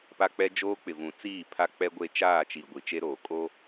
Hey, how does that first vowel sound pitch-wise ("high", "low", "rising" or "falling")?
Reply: high